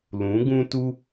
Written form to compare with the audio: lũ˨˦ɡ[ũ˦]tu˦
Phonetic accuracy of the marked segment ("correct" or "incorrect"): correct